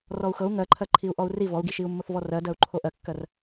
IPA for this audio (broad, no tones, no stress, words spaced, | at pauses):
rɔu̯xɤu̯ ŋɜǃʰɜ ǃʰiu̯ʔɔu̯ri vɔu̯ɡiʃiu̯ mːoθvɔrɜdɜu̯ ǃʰoʔɜkːɜr